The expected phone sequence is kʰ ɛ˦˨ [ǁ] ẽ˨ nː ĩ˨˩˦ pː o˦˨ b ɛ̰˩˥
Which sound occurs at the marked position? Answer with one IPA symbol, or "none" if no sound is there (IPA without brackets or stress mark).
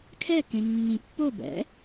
k